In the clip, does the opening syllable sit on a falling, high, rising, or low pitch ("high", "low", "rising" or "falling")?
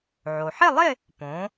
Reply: low